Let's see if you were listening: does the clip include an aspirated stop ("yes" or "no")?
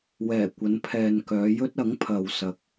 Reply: yes